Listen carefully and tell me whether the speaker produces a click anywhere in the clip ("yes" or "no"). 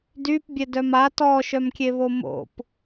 no